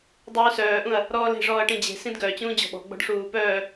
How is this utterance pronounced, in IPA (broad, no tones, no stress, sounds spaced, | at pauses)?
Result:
dˤ uː s œː ʔ ũ ɐ̯ | ɾ ɔː l e̤ ʐ ɔː ɐ̯ ʈ ĩ d͡ʑ e̤ s ĩ d ɡ œ t͡ɕ ũː d͡ʑ ɔ̤ ɓ ɔ̤ ɡ͡b ɔ̤ ɖ ʂ uː p œː